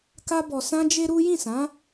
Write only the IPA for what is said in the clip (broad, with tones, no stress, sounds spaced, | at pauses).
k a˦ b ɔ˧ s ã˦ d͡ʒ e˦ ɾ u˦ j ĩ˦˨ s ã˨˦